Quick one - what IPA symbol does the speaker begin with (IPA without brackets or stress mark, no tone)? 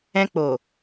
ɛ̃